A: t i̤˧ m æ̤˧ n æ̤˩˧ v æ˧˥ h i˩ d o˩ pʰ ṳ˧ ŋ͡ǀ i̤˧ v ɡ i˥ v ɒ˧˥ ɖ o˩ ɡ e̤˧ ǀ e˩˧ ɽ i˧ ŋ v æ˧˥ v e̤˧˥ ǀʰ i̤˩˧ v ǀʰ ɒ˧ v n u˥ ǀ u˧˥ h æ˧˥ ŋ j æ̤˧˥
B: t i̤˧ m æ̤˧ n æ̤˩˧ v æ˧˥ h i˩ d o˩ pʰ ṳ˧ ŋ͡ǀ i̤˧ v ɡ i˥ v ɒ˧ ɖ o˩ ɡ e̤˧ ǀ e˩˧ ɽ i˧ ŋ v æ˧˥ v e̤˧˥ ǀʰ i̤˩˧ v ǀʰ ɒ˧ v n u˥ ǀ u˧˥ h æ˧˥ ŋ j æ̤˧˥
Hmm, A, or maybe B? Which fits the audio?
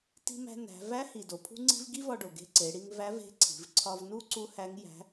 B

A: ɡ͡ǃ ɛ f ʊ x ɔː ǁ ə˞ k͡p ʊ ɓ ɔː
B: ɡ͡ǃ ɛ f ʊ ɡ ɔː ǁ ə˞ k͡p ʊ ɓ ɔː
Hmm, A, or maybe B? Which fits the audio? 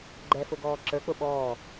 B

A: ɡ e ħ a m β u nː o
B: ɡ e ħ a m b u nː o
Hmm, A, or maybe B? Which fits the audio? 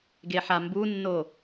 B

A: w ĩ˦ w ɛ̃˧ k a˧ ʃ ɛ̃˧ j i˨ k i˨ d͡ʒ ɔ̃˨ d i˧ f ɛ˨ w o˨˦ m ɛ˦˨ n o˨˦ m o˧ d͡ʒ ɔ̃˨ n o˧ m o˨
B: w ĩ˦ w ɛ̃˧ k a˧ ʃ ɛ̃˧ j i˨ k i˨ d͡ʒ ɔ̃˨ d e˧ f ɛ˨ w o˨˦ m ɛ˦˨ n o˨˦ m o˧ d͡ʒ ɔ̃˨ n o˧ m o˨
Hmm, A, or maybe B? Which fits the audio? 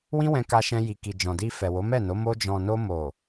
A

